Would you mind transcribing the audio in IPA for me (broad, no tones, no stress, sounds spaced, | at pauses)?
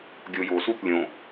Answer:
ɡʲ o j o s u θ lʲ õ